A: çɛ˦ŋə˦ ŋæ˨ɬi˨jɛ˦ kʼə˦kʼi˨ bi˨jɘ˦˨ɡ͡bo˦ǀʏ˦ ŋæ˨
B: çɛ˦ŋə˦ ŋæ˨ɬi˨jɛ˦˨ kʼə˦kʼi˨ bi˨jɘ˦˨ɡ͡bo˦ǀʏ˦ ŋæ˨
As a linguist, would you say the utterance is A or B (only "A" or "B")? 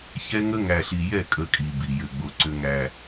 B